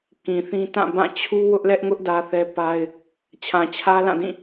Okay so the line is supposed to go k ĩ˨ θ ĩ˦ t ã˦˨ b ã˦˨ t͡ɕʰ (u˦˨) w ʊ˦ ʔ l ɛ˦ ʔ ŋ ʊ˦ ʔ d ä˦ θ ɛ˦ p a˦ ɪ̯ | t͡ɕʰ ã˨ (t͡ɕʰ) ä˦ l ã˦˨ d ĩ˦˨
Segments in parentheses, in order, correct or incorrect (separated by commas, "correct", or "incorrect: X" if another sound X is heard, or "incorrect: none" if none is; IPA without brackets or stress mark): incorrect: u˦, correct